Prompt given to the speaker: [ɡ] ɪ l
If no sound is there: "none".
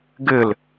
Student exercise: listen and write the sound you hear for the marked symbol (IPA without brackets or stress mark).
ɡ